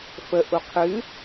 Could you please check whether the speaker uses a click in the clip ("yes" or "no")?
no